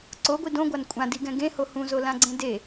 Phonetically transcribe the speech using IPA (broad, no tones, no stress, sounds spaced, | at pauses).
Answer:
ǀ o ɡʷ i d õ ɡʷ a n kʷʼ ã d i ɡ ɛ̃ ɡ ẽ h o h ũ z o l ã ɡ͡ǀ ẽ d e